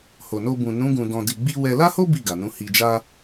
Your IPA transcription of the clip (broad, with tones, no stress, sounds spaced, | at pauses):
h o˨ n o˧ b ũ˨ n ũ˨˦ ɡ ũ˧ d ɔ̃˧ d i˧ ɡ͡b i˦ w ɛ˧ l a˦ h o˦ b i˦˨ ɡ a˨ n ũ˨˦ h i˧ d͡ʒ a˦